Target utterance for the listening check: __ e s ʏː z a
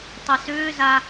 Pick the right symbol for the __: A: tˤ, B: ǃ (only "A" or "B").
A